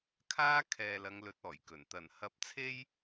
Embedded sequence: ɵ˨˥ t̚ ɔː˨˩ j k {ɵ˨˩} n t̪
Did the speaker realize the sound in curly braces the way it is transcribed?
yes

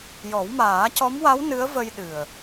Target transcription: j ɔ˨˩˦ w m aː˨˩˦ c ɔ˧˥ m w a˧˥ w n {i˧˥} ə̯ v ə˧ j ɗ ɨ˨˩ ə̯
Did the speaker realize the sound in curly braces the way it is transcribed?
no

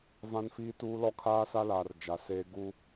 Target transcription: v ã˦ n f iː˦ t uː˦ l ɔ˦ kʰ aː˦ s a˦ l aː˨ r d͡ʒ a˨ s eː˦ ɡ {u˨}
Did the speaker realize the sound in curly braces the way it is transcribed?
no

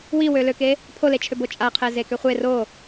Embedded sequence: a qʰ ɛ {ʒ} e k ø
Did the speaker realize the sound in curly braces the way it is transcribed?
no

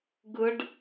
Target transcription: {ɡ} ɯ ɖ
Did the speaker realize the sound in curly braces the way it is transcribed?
yes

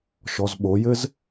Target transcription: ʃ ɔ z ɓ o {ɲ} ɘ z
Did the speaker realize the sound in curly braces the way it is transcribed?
no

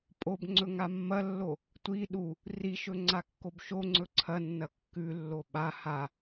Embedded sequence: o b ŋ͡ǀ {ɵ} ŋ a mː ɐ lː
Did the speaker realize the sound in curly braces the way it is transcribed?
yes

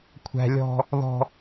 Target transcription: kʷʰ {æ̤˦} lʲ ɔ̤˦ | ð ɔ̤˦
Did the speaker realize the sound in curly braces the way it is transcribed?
yes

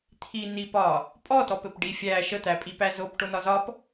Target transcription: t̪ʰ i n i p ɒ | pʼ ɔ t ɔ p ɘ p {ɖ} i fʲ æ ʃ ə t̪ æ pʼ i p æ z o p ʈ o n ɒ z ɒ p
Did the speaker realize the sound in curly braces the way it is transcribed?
yes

